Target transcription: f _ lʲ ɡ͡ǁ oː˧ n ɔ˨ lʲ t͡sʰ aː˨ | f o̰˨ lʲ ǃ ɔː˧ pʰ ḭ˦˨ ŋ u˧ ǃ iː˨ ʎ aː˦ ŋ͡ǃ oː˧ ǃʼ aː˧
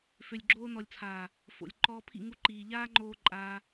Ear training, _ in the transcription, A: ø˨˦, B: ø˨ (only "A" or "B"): B